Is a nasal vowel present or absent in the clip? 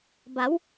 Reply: absent